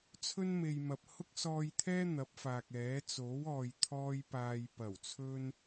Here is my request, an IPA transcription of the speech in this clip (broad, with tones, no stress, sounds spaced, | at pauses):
t͡sʰ ɵ˥ n m e˨ j m ɐ˨ p̚ h ʊ˥ k̚ s ɔː˧ j t̪ʰ ɛː˥ n̪ ɐ˨˥ p̚ f aː˨ k̚ ɛː˨˥ t͡s o˨˥ w ɔː˨ j t̪ʰ ɔː˧ j p aː˨ j p ɐ˨˩ w t͡sʰ ɵ˥ n